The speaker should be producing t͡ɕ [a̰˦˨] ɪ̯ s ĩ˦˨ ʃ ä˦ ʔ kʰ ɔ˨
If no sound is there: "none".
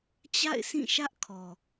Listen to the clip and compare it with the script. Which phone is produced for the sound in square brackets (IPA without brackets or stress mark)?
a̰˦˨